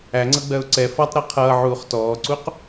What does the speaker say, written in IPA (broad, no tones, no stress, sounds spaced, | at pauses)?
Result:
æ ŋ͡ǀ ʌ ɡ͡b ɜ ʊ̯ ǀ ɛ f ɒ tˤ ɾ ɛ qʰ ʌː ʕ uː χ t ɔː ǀ u q